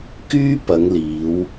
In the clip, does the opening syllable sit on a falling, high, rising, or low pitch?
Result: high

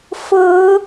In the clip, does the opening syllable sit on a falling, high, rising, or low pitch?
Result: rising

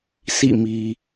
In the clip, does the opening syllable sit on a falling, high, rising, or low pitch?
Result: falling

